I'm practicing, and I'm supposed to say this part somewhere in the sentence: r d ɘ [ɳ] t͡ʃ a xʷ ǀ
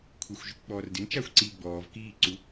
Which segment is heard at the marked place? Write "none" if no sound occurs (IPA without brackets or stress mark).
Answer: n